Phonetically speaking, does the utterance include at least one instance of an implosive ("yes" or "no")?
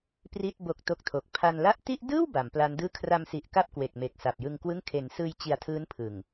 no